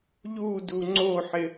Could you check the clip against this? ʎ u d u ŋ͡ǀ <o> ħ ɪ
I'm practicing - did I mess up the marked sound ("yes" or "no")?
no